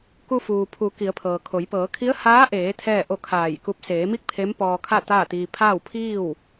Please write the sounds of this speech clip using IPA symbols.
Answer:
k u˧ f uː˩ pʰ u˩˧ k i˩˧ ə̯ pʰ ɤː˩ kʰ o˩˧ j p ɤː˩˧ kʰ i˧˥ ə̯ h aː˧˥ ʔ eː˩˧ t̪ʰ ɛː˥˨ ʔ o˥˨ kʰ aː˧˩ j k u˧˥ p̚ s eː˩˧ m i˥˨ k̚ pʰ e˧˥ m p ɔː˧ kʰ a˥˨ t̪ aː˥˨ t̪ iː˧ pʰ aː˥˨ w pʰ iː˥˨ w

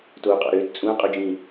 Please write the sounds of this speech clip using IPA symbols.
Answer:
t oː qʼ ɑ̰ ɾ øː t t͡sʼ ũ ɐ̯ qʼ o d͡ʒ ĩ

